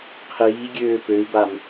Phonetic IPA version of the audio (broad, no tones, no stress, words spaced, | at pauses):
qʰiːɡʲøː pøi̯bam